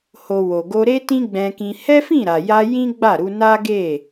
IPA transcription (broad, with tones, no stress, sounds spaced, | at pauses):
h o˨ w o˨ ɡ o˧ ɾ e˦ t ĩ˦ ɡ͡b ɛ̃˧ k ĩ˧ h ɛ˦ f ĩ˦˨ ɾ a˨ j a˧ j ĩ˦ ɡ͡b a˦˨ ɾ u˧ n a˦ ɡ e˦˨